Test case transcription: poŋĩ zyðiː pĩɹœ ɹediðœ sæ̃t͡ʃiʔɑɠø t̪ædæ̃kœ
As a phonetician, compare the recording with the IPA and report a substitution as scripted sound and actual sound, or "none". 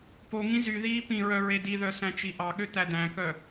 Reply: none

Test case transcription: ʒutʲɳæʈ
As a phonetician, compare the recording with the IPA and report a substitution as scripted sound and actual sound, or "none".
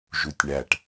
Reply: none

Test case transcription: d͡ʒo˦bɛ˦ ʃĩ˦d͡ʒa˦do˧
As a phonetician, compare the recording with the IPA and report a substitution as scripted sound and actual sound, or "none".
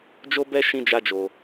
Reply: d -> d͡ʒ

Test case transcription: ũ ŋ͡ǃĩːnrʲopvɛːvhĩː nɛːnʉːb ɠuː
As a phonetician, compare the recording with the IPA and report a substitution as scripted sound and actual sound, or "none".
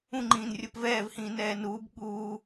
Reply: ʉː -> uː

